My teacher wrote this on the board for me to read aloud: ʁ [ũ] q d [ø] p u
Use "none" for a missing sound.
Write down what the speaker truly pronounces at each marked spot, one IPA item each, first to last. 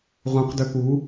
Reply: ũ, ø

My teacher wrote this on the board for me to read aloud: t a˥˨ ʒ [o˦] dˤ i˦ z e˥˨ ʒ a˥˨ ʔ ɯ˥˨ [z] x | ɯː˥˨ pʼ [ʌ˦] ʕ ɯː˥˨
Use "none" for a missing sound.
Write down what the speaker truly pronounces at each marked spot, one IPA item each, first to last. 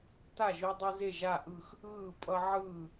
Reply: o˦, none, ʌ˦

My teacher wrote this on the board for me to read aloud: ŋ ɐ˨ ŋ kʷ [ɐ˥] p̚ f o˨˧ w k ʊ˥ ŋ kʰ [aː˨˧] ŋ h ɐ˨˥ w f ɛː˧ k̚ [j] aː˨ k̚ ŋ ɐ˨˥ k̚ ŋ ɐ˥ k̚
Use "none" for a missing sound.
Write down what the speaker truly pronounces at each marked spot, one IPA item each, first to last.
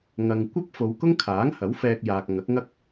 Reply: ɐ˥, aː˨˥, j

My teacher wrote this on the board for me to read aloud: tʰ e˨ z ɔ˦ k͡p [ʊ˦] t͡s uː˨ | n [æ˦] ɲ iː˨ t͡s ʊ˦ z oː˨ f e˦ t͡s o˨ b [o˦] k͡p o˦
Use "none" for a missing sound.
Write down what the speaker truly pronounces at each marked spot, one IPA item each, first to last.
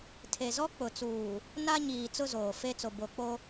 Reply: ʊ˨, a˦, o˨

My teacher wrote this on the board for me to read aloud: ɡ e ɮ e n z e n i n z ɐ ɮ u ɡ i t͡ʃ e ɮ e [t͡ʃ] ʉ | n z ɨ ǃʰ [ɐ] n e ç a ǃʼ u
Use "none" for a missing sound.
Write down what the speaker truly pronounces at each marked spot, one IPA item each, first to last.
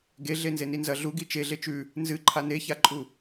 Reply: t͡ʃ, a

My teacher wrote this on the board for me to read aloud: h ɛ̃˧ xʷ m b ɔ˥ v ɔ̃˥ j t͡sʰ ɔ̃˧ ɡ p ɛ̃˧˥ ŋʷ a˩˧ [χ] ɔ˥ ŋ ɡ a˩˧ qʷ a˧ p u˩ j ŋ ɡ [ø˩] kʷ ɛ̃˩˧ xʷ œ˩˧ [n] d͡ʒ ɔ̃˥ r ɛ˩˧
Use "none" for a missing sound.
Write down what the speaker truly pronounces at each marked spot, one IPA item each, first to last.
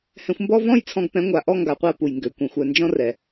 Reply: ʔ, ø˩˧, n

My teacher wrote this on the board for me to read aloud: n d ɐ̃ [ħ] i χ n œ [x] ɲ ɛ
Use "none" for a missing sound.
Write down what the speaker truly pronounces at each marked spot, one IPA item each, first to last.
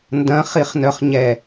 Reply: χ, χ

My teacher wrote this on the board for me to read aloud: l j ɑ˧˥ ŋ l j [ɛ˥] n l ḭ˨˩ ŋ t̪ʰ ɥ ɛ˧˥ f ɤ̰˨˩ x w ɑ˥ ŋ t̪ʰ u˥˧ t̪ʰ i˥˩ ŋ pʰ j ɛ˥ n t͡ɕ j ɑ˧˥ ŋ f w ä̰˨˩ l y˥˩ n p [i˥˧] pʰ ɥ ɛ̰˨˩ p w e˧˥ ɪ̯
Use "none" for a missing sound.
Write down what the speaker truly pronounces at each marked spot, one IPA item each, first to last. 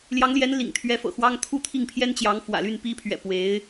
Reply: ɛ˧˥, i˧˥

